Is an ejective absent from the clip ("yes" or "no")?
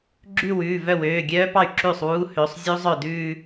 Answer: yes